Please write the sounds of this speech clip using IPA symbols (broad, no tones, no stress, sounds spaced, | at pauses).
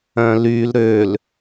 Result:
œ̃ l y l ɾ ø l